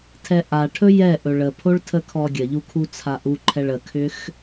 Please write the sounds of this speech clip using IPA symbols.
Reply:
tʰ ɛ ʔ a ʈʰ ɵ j ɛ ʔ ɵ ɭ ə pʰ o ɭ tʰ ə kʰ ɔ ɡʲ ə ʎ u kʰ u t͡sʰ a ʔ u ǃʰ ɛ ɭ ə kʰ ʏ x

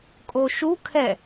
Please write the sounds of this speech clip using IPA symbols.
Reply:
kʼ o ʃ u kʰ ɛ

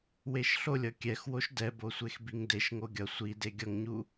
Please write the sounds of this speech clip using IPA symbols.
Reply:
w e ʃ ɬ o lʲ ʌ kʲ ɛ x w o ʃ d ɛ b o sʷ e x b i ŋ d e ʃ ŋ o ɡʲ ʌ sʷ i d e ɡʲ ʌ ŋ ɲ u

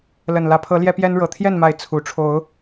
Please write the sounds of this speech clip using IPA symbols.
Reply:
l ə˨˩ n l ä˨˦ pʰ ɤ˨˦ l j ɛ˦ p j ɛ˦ n ɻ ɤ˨˩ t̪ʰ j ɛ˥˨ n m a˨˦ ɪ̯ t͡sʰ u˨˩ ʈ͡ʂʰ o˨˦ ʊ̯

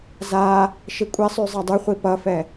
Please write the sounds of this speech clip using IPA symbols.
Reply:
z a | ʃ i kʷʼ ɛ sˤ y zˤ a dˤ y χʷ i p ʌ f ɛ

